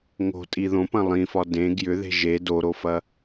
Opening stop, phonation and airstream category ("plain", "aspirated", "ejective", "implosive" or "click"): ejective